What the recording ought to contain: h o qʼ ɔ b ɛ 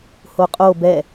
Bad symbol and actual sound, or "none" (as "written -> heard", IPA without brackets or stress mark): ɔ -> o